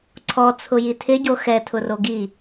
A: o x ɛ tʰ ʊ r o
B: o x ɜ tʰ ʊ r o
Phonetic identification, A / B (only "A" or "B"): A